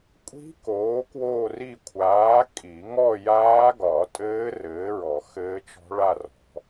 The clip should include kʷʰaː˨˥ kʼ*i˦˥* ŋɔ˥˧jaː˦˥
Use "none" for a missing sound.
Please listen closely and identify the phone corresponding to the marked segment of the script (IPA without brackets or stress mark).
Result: i˨˩˦